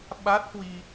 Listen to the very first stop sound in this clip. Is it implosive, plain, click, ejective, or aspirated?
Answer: implosive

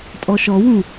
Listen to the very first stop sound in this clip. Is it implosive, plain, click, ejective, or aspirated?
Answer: ejective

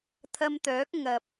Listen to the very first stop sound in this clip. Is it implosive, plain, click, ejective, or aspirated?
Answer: aspirated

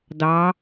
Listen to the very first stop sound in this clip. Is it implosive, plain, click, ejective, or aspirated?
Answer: plain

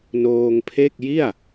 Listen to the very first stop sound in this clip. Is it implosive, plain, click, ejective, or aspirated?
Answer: aspirated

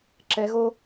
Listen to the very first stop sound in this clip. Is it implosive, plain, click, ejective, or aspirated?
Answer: click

